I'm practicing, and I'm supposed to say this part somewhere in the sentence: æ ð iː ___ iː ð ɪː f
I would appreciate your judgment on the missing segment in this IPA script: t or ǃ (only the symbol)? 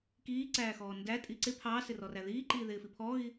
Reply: ǃ